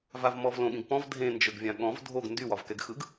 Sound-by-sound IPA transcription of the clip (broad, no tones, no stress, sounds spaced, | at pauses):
v a v m ɔ v l õ ɠ ĩ ɡ p ɔ̃ v dʱ ẽ n d͡ʒ ə˞ ɡ vʲ ã ɠ ɔ̃ v dʱ o ɡ n d y w ɒ v k ɛ ɡ x ɯ ɡ